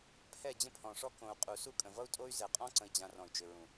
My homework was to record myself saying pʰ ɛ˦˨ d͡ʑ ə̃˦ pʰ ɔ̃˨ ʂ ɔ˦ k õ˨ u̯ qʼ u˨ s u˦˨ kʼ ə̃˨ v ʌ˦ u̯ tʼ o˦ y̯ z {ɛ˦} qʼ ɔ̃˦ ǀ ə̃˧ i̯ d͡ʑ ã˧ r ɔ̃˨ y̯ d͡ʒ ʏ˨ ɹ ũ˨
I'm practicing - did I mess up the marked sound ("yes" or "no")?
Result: yes